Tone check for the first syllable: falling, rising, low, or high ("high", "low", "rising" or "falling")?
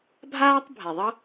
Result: high